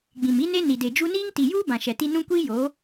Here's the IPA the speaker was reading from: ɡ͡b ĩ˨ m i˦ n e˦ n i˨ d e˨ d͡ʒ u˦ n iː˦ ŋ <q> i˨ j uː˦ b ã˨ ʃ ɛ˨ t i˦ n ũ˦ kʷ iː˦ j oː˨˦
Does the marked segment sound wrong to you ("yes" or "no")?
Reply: yes